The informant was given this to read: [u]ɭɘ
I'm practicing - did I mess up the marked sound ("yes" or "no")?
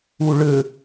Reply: no